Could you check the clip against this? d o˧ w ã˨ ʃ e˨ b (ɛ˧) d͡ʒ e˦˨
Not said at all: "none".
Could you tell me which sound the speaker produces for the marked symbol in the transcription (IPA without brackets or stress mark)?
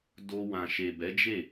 ɛ˨˦